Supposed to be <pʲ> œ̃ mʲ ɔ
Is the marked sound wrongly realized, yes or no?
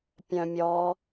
no